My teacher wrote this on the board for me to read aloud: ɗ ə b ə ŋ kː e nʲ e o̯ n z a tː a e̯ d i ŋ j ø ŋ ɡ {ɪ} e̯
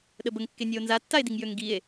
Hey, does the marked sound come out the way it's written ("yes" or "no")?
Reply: no